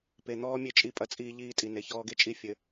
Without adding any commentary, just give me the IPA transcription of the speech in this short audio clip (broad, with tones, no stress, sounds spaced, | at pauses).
p e˨ n̪ ɔː˦ mʲ e˦ t͡ʃʼ i˦˨ pʼ ɐ˦ t͡sʼ iː˦ ʎ iː˦ tʼ i˨ n e˨ ç ɔː˦ ɡ e˦ t͡ʃʼ i˦˨ fʲ ɘ˨